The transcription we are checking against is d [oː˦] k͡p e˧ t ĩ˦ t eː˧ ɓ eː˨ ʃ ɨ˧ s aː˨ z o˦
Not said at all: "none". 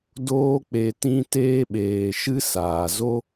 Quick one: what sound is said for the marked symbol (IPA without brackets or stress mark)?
oː˦